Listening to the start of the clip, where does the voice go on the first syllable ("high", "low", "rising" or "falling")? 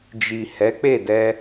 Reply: low